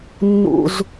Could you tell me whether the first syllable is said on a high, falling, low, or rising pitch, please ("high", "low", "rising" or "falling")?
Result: low